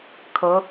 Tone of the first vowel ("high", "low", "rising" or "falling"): rising